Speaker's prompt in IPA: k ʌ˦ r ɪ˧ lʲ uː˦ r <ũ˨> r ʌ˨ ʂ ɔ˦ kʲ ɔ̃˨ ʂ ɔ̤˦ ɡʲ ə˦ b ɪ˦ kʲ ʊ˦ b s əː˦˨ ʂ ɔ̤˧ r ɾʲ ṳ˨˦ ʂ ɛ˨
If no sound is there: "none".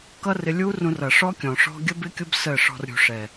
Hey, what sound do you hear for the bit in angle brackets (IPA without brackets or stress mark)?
ũ˧